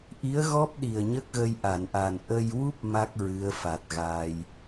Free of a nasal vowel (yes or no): yes